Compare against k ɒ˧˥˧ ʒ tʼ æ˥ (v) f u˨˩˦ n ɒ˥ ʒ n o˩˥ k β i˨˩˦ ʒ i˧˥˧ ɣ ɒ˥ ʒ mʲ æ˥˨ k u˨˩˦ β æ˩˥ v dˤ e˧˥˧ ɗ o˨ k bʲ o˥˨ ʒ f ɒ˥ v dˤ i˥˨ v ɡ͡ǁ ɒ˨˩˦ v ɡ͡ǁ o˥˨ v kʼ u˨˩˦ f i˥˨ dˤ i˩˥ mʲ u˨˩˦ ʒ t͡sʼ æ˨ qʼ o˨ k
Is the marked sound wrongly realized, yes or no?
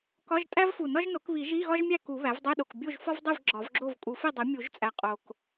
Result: no